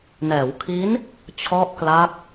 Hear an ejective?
no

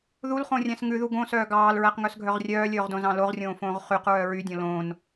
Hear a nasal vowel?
yes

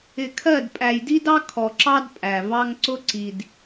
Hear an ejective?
yes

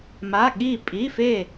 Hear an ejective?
yes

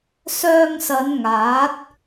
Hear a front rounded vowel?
yes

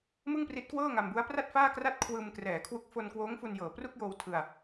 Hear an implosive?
no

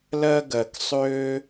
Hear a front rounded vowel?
yes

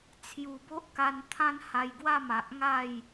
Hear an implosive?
no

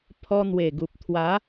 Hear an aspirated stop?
yes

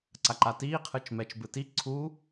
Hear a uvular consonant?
yes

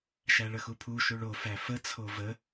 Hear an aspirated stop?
yes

